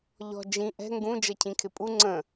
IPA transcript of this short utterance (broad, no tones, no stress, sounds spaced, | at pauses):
ʎ ɔ̤ d͡ʒ ĩ ʔ ɛ̤ ŋ ɡ ũ d͡ʒ ʌ cʰ ĩ kʰ ɪ pʼ u ŋ͡ǀ ə̃